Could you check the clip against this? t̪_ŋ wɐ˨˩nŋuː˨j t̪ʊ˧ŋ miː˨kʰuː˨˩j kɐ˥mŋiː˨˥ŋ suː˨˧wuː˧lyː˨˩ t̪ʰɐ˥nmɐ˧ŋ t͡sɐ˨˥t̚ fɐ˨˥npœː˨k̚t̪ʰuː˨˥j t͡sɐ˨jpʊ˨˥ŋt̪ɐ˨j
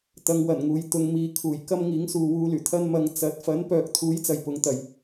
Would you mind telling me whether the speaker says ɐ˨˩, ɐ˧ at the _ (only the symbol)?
ɐ˧